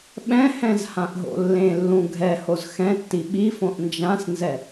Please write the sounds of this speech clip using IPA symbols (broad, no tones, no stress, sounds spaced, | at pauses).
ɓ ɛ̃ h ɛ̃ z h ã ʔ ɦ o̰ lː ẽ lː ũ ɡʱ ɛ h o z x ɛ̃ tː i ɓ i f õ ʔ n d͡ʒ ã s n z ɛ